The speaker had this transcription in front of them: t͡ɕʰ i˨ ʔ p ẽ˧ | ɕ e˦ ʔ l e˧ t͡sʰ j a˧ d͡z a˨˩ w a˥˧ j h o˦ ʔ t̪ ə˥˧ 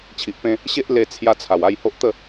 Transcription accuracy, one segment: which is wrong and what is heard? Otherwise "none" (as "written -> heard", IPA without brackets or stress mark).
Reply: d͡z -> t͡sʰ